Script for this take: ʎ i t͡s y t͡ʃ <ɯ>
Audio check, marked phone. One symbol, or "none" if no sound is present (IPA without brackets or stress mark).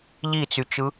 ɯ